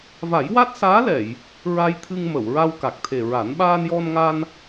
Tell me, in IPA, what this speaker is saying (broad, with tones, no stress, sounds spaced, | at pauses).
v a˨˩˦ j w a˦˥ t̚ s aː˧˥ l ɛ˨˩˨ j | ɹ a˧ j t̪ʰ ɨ˧ ŋ m ə˨˩˨ w ɹ a˧ w k a˨˩ k̚ t̪ʰ e˨˩ ɹ a˨˩˦ n ɓ aː˧ n j ɔ˧ n ŋ a˧ n